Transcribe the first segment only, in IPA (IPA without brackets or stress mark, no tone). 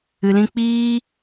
ɨ